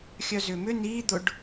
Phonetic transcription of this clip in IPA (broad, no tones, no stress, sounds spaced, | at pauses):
xʲ œ z ʏː m ʏ n iː d̪ ʊ ɖ